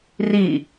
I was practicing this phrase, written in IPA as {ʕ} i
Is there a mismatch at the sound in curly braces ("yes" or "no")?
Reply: yes